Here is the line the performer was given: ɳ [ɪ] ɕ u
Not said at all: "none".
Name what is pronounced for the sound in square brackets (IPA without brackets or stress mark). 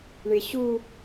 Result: ɪ